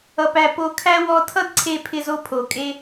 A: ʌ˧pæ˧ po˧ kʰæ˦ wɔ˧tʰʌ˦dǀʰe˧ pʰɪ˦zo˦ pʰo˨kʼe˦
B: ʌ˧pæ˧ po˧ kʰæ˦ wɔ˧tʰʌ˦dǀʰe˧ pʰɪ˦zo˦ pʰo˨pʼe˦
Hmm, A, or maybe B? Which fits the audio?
A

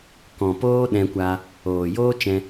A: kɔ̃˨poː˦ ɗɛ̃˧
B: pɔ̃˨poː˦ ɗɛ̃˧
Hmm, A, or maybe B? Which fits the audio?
A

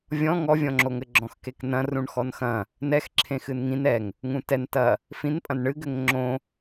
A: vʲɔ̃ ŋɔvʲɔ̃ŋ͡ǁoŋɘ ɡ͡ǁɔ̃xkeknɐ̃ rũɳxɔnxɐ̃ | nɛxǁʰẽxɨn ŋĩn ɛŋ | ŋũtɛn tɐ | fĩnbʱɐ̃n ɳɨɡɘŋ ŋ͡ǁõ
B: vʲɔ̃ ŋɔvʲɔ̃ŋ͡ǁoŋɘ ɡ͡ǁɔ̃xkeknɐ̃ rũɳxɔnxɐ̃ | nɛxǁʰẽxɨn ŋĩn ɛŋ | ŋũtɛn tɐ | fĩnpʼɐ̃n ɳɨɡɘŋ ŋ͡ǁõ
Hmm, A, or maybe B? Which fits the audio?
B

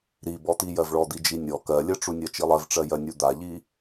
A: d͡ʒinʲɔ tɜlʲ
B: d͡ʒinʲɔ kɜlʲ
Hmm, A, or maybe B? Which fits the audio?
B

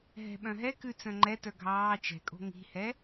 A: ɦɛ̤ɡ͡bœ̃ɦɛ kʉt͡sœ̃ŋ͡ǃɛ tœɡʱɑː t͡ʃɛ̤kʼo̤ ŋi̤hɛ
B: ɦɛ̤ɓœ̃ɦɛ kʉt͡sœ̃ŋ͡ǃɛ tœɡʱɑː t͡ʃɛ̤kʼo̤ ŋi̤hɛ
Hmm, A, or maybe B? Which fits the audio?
B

